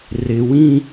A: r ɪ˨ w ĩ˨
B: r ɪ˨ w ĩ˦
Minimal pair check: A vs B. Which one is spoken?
B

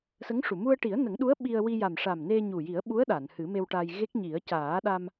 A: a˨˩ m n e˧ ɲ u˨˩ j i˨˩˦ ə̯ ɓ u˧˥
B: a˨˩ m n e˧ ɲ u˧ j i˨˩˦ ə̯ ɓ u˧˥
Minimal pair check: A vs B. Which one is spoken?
A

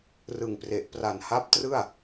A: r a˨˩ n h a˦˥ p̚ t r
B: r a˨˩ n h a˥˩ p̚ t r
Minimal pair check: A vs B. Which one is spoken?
A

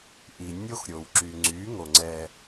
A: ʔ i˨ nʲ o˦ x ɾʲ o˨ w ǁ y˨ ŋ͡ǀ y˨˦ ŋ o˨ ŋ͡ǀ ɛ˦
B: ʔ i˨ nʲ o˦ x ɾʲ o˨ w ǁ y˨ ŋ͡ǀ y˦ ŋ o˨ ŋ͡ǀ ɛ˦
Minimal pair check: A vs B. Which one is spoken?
A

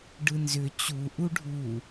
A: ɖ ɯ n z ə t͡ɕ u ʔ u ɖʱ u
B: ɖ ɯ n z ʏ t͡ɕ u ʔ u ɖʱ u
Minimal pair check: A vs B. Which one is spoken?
B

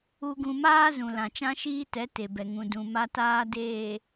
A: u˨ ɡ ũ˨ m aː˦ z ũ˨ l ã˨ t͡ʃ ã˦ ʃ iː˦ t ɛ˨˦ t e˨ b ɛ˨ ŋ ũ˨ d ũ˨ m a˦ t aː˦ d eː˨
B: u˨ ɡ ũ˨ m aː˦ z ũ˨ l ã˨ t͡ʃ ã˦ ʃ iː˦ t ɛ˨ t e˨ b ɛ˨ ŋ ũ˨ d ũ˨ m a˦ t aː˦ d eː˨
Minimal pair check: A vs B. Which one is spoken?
A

